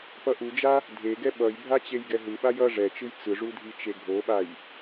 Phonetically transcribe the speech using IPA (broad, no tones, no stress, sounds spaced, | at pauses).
p ʌ ʔ u d͡ʒ a | dʱ e ɡ ɛ ɓ ʌ j bʱ a t͡ɕ e j ɡ ɛ ɦ ɯ ɓ a j ʌ ʐ ɛ t͡ʃ ɯ j t͡s ɯ ʐ u dʱ i t͡ʃ e ɡʱ o ɓ a j